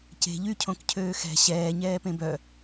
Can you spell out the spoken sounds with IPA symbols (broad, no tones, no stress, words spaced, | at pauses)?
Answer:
ce̤ ʎycʰõkcʰøː xɛ̤ ɕɛːɲɛːpẽ bœ